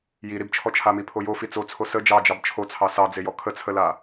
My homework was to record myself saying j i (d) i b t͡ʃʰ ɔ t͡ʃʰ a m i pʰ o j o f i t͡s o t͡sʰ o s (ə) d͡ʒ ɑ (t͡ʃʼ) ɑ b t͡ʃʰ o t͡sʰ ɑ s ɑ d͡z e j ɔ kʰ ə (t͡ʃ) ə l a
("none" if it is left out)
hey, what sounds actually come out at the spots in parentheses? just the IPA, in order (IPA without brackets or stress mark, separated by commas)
ɾ, ə, d͡ʒ, t͡sʰ